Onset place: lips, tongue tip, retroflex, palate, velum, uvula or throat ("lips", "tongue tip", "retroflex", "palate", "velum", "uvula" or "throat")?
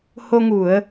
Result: throat